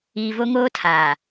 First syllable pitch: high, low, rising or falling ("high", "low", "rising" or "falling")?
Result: low